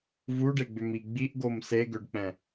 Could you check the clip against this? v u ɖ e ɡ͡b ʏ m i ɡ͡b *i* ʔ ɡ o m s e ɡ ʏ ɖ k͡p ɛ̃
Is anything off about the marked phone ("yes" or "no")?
no